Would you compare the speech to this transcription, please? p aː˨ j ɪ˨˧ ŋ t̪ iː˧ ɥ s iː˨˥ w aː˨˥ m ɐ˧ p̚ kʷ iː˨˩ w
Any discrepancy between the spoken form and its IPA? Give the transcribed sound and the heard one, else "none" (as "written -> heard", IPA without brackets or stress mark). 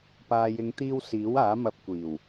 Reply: ɥ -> w